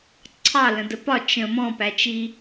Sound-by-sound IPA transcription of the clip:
ǀʰ ɑ l ə̃ d ə p ɒ t͡ʃ ə̃ m ɔ̃ p æ t͡ʃ i

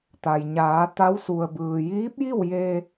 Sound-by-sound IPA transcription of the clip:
t̪ a˩ j ɲ aː˩˧ t̪ a˧˥ w s u˩ ə̯ b ɯː˩ j iː˧˥ p̚ j i˥˨ w j eː˧

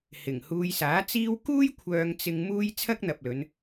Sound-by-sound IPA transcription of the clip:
h ɪ˨˩ ŋ h uː˧ j s aː˨˥ t͡s iː˥ w k uː˥ j kʷʰ œː˧ ŋ t͡s ɪ˧ ŋ m uː˥ j t͡sʰ ɐ˥ k̚ n̪ ɐ˨ p̚ l ɵ˨˧ n

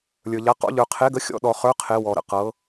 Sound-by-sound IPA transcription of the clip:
lʲ ə˞˨ ʎ a˨˦ q ɔ̰˨˦ ʎ ə˞˨ qʰ e˨˦ ɡ ə˨˦ xʲ ɔ̰˨˦ ɗ ɔ˨ χ ə˞˨˦ qʰ e˨˦ w ɔ˨ ɾ ə̰˨ q ɤ˨˦

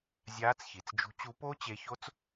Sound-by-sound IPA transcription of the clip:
zʲ aː˨˦ t͡s ç i˩ t͡s d͡ʒ ṳ˨˦ t͡ɕ u˨˦ p o˦˥ t͡ɕ e˨˦ ç o˦˥ t͡s

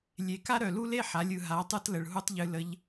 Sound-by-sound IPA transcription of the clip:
lʲ e˩ k a˥ ɾ œ˩ l u˥ l e˥ ħ a˩˧ lʲ ɯ˩ ɦ a˩˧ tˤ ɯ˧ t l ə˩ ɭ ɦ u˥ tˤ ʎ ɨ˧ l ə˧˥ ʎ

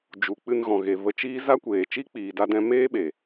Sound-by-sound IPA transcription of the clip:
d͡ʒ u˨ k͡p ɨ˧ n ɣ ɔ̃˨ ɣ e˨ v ə˧ t͡ʃ iː˦ z a˦ kʷ eː˨ t͡ʃ i˦ k͡p iː˨ d a˧ d ɛ̃˧ m eː˦ ɓ e˨

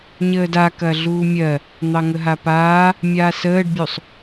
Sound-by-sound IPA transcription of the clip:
ɲ əː d a k ɐ ɮ uː mʲ ɜ | n̪ ɑ ŋ ə ɦ a p aː | mʲ aː s əː ɖ bʲ u sˤ

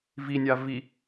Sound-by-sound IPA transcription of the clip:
v i nʲ a v i

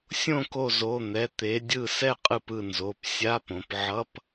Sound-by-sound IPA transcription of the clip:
sʲ õ˥˩ k o˧˩ z o˩˧˩ n̪ ɛ˩˧˩ t̪ e˩˧ dʲ ɯ˧˩ s ɛ˥˩ qʼ ɯ˧˩ p ɯ˥˩ n z o˩˧˩ p sʲ a˧˥˧ p õ˩˧ p ʕ ʌ˧˥˧ p

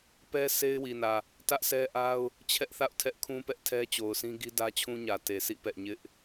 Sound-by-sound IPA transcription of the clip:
p ɛ˦ s e˦ ɪ̯ w i˨ n ä˨ | t ä˦ ʔ s ɛ˦ ʔ a˦ ʊ̯ | t͡ɕʰ ɛ˦ ʔ θ a̰˦˨ ʊ̯ tʰ ɛ˦ ʔ kʰ ũ˦ p ɛ˦ ʔ tʰ ɛ˦ t͡ɕ o˨ ʊ̯ s ĩ˦ ɡ i˦ d ä˦ t͡ɕʰ ũ˦ ɲ ä˨ t e˨ s ḭ˦˨ p ɛ̰˦˨ ɲ ɪ˦ ʔ

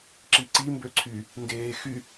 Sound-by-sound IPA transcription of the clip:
ǁ i ǀ i m b ø ǀʰ y | n d eː x y

